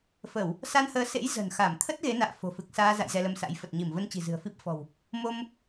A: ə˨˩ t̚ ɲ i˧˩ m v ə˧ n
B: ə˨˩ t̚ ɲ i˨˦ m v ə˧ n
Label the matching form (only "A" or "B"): A